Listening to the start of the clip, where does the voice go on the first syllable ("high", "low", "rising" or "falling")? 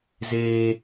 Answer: high